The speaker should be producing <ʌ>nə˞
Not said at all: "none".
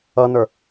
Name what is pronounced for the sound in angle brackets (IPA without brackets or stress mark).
ʌ